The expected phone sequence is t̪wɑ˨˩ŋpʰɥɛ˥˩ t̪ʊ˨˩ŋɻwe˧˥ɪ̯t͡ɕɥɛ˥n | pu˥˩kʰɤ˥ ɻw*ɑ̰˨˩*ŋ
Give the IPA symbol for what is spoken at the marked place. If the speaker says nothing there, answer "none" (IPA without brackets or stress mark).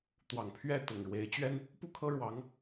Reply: ɑ˧˥